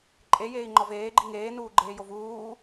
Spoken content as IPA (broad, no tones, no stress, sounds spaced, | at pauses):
ǃʼ e j eː i̯ ŋ͡ǃ ɒ v eː ɡ͡ǃ i ŋ eː n uː ɡ͡ǃ eː j o v uː